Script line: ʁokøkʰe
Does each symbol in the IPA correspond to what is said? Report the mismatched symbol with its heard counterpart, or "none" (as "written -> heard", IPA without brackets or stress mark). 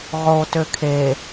k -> t